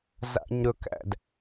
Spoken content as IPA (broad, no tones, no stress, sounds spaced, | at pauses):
z a̰ ɲ ɾ ɵ k æ̰ d